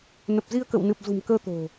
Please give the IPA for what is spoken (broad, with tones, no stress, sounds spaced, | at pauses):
n ə˨˩ p̚ z i˧ ə̯ k ə̰˧˨ w n ɨ˨˩ p̚ z ṳ˨˩ m k əː˧ t̪ o̤˨˩